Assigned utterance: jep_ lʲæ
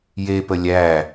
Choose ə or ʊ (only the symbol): ə